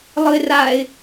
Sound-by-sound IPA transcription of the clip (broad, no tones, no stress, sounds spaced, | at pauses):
lˠ ɯ ɪ̯ r a ɪ̯